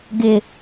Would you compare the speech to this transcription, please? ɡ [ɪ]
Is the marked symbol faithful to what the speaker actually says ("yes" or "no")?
yes